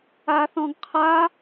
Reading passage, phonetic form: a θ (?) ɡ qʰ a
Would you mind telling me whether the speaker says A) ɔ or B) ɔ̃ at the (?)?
B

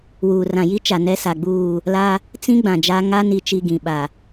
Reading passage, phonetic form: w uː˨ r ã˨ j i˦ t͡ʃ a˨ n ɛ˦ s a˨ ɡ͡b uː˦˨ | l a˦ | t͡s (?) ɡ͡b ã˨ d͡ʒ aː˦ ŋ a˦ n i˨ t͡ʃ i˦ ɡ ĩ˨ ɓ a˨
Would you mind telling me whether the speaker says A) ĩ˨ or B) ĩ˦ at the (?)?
B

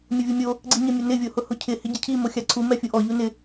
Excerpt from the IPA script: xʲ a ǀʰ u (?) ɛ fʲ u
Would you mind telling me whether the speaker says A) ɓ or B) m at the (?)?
B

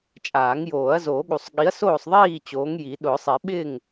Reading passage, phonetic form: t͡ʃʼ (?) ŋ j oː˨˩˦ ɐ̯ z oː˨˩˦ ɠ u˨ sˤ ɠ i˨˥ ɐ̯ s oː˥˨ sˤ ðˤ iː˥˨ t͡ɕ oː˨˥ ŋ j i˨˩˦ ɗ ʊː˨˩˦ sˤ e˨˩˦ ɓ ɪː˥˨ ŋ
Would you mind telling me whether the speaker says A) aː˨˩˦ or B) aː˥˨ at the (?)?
A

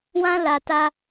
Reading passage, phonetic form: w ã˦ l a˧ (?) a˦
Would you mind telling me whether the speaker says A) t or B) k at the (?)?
A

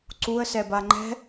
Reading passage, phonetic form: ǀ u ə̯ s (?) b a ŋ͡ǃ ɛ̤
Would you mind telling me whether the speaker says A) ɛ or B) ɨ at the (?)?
A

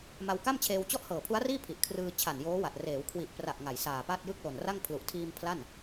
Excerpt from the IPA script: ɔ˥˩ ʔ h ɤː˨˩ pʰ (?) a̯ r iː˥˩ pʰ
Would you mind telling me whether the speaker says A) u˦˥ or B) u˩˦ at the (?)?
A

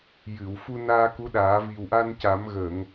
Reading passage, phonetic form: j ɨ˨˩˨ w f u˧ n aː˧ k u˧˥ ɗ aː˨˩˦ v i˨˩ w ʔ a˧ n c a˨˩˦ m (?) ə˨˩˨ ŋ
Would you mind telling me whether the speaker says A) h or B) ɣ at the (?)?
B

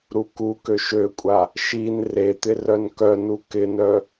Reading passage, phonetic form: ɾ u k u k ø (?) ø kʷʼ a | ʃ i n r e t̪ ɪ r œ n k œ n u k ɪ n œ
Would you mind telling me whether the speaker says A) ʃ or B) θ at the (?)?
A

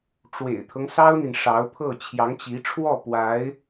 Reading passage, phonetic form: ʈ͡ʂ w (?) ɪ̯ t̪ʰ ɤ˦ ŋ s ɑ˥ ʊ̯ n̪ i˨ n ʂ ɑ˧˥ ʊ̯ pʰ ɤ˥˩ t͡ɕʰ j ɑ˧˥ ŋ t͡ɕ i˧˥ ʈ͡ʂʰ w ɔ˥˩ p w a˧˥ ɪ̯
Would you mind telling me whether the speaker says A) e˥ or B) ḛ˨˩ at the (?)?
B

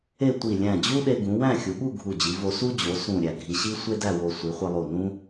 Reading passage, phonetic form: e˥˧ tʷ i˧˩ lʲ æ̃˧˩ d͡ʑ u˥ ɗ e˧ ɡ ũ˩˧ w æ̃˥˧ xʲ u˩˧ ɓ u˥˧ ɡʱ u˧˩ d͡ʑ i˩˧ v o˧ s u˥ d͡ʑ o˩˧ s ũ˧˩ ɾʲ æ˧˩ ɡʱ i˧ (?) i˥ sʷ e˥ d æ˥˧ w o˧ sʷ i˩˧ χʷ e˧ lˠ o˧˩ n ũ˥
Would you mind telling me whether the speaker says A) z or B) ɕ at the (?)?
B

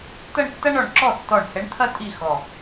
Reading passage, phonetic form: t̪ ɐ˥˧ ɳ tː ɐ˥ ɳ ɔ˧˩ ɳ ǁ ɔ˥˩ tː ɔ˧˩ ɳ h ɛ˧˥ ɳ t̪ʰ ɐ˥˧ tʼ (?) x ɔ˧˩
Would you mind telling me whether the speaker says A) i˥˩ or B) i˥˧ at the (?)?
A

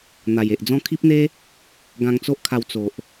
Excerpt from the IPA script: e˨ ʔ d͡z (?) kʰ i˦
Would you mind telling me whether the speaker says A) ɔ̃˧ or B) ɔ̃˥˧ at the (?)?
B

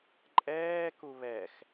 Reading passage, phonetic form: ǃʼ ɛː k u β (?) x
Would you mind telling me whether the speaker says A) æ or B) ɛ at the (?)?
B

